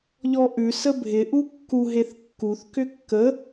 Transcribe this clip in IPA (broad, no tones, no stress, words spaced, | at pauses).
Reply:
ʎɔʔʉ səbʱɪ ʔukːu ɦeθkːuθ kʏkːə